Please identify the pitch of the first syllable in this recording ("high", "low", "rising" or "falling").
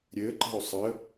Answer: rising